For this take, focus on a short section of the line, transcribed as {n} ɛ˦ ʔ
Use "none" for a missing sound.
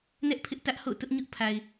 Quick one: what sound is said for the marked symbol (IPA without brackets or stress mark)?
n